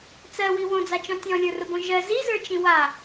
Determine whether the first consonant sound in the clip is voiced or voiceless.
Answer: voiceless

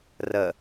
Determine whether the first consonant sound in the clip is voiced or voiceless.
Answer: voiced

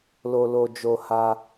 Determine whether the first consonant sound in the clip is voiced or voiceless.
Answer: voiced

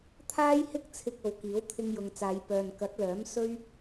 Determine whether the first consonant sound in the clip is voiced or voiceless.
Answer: voiceless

